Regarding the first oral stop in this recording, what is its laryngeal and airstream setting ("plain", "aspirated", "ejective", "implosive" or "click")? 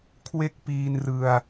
aspirated